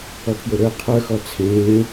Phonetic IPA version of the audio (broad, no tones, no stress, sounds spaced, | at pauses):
ɔ pʰ j o ɾ ə˞ qʰ ə˞ x ɔ t͡sʰ ẽː